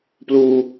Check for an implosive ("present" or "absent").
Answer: absent